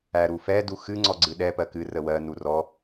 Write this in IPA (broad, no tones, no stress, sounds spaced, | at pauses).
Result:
æ ɾ u f ɛ d u x ɨ ŋ͡ǀ ɔ ɡ͡ǀ ɨ ɗ ɛ p ɜ k ɨ r ə w ɜ n u r ɔ